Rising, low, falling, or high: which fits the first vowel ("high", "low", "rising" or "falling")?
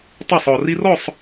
falling